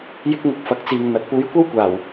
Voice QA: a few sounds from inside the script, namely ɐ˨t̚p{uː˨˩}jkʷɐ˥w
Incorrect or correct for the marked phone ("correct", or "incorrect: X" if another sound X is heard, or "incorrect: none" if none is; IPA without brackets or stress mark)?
incorrect: uː˨˥